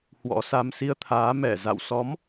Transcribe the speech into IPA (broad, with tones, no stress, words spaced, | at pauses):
hwɔ̰˧˥sa˧m si˧ə̯t̪ʰaː˨˦ mɛ˧˩ za̰˧˨wsɔ˨˦m